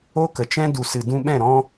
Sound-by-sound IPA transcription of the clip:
o˦ k ə˨ t͡ʃ ɛ̃˦ d u˨ s ɨ˨ d ũ˧ ɓ ɛ̃˦˨ ɾ ɔ̃˦

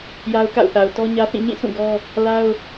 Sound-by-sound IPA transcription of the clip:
j a˦ ʊ̯ k a̰˦˨ ʊ̯ θ a˨ ʊ̯ t ɔ˦ ɲ ä˦ θ ĩ˦˨ ɲ ĩ˦˨ s ũ˦˨ ɡ ɔ˦ | l a˦ ʊ̯

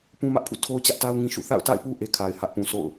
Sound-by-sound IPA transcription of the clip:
p ũ˦ m ä˦ ʔ pʰ ṵ˦˨ tʰ o˦ ʊ̯ t͡ɕ ä˦ ʔ t a˦ ʊ̯ ŋ ĩ˦ ʃ ṵ˦˨ θ a̰˦˨ ʊ̯ t a̰˦˨ ɪ̯ p u˦ ʔ e˦ kʰ a˨ ɪ̯ h ä˦ ʔ p ũ˨ sʰ o̰˦˨ ʊ̯

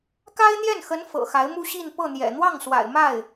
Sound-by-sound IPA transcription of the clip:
k a˥ ɪ̯ n̪ j ɛ˥˩ n x ə˧˥ n f ɤ̰˨˩ x a˧˥ ɪ̯ m u˥ ɕ i˥˧ n p ɤ˥˩ n̪ j ɛ̰˨˩ n̪ w ɑ˥˩ ŋ s w a̰˨˩ ɪ̯ m a˥˩ ɪ̯

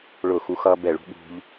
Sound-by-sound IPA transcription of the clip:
ɭ ʊ˧˩ x u˧ x ʌː˧ b ɛ˧˩ ɭ ṳ˥ ɠ ṳ˧ ʎ

